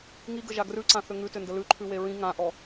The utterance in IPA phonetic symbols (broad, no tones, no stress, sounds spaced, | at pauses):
ŋ i ɡ ə ʒ a ɡ r ʉ ǀ ã θ ʏ ŋ ʉ t ʏ n d ə l ʉ ǃʰ ʉ w e ɹ ĩ ŋ ã ʔ ɔ